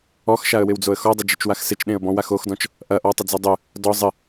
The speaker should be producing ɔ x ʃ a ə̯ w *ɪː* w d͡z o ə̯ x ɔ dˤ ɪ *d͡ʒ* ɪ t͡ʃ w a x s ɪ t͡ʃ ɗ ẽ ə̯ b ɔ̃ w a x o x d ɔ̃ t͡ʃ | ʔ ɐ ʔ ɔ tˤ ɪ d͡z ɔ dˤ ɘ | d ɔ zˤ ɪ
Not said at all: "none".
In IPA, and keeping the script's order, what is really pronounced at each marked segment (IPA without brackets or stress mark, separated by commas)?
ɪ, d͡ʒ